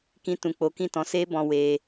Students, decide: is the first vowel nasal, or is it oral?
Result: nasal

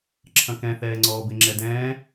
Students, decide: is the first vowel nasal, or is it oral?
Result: nasal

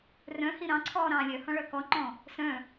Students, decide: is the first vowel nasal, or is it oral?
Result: nasal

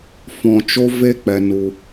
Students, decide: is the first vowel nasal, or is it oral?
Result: nasal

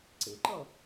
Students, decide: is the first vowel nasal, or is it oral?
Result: oral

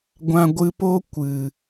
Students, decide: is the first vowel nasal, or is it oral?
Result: nasal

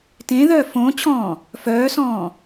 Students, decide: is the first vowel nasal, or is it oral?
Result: nasal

